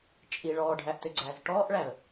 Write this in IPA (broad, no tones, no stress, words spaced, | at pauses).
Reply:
t͡ʃʼi ɭɔːɖʱæʔtʏɡ͡ǀæːz ʈɔːʔɭæə̯